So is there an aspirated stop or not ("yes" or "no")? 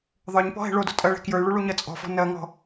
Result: no